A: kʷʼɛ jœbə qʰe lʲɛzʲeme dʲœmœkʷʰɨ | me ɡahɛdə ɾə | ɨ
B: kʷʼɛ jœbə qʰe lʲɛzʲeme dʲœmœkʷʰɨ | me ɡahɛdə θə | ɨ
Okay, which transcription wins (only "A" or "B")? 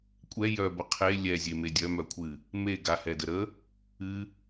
A